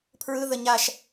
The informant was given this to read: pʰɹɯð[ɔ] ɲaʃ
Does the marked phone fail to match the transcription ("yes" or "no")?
yes